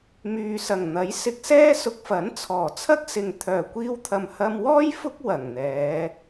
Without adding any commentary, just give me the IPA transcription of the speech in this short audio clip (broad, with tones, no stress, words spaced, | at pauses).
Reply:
myː˨sɐ˨˩ŋn̪ɐ˨˥jsɪ˧k̚ sɛː˥sʊ˧k̚fɐ˨˥n t͡sʰɔː˨˩t͡sʰɐ˥k̚sɪ˨ŋ t̪ʰœː˨˩kʷiː˧wt̪ʰɐ˨m hɐ˧mwɔː˥j fʊ˥k̚ wɐ˨˩ŋn̪ɛː˨˧